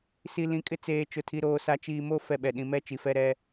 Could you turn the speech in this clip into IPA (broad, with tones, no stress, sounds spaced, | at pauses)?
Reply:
s i˨ l ĩ˨ kʼ ɪ˦ t͡s eː˨ t͡ʃ ʊ˨ tʰ i˨ ɾ oː˨ s a˨ t͡ʃ iː˨ m o˦˨ f ɛ˦ ɓ ɛ˨ ɗ ĩ˨ m ɛ˦ t͡ʃ i˨ f ɛ˦ ɾ ɛ˦